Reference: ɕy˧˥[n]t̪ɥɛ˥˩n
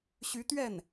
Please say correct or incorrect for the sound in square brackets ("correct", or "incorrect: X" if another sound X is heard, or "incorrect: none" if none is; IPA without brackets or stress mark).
incorrect: none